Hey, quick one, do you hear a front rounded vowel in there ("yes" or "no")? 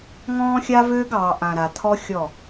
yes